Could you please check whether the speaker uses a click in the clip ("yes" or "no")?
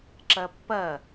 yes